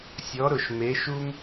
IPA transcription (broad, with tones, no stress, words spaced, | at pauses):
sʲɔ˧˥ɾʊ˦˨ʃme˧˥ʃu˥m